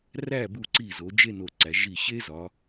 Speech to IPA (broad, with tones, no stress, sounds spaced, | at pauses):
r æ˧˩ b u˧˩ ǀ i˧˩ z o˩˧ d͡ʒ e˥˧ n o˧˩ ǀ æ˩˧ ʒ i˧˩ ɕ e˥ z ɒ˩˧